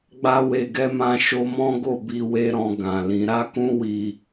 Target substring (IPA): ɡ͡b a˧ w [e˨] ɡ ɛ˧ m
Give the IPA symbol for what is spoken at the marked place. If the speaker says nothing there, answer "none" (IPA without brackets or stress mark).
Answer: e˨